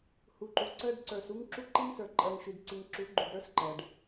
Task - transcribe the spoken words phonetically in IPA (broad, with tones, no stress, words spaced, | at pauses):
hu˨ǃu˨ ǀɜ˦ɖ ǀə˞˨s u˦ŋ ǁu˦ǃi˦ŋsə˞˨ ǃʼɜ˨ŋʃy˨dǀi˨ŋ ǁu˨˦ɡ͡ǃu˨ɡɾə˞˦s ǃɜ˨ɖ